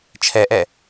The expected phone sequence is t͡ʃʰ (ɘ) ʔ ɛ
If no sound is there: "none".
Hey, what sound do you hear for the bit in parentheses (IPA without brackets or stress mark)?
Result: ɛ